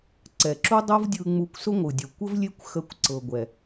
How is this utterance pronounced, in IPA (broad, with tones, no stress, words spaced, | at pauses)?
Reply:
ǀɛ˨ǁu˦dˤo˦vdʲɯ˧ ŋ͡mu˧kʷsʊ˦ŋʷɯ˨dʲʊ˨ kʷə˦vlʲe˦kʷ xə˧kʷǀɤ˨ɡʷɛ˨